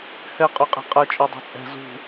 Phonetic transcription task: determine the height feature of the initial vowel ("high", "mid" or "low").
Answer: mid